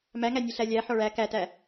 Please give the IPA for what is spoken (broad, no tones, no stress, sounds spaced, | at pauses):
m æ ŋ æ nʲ ɛ ɬ æ lʲ æ ħ ɔ ɭ æ k æ t æ